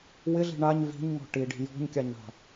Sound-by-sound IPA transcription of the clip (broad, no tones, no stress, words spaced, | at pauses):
wɪɮi̤ ɳaɲ vi̤ɲŋɔ̤ ʈiɖi̤ jɔ̤ɲkʲaɲɳa̤